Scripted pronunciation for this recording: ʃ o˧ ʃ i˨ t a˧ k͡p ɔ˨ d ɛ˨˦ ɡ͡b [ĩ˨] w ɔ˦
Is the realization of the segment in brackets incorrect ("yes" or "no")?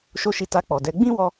yes